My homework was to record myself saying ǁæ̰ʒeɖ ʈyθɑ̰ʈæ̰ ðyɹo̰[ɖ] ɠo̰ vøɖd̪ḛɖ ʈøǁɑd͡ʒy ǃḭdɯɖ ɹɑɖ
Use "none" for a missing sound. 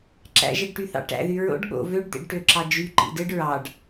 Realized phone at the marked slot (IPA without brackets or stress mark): ɖ